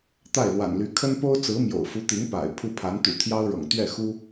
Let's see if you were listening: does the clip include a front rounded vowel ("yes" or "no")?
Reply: yes